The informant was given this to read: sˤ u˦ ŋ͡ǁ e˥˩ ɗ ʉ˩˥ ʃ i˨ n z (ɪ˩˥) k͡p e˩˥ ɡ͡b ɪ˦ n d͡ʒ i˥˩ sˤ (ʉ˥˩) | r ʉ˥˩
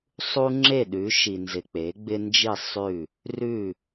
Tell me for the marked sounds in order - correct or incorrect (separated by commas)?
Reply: incorrect, correct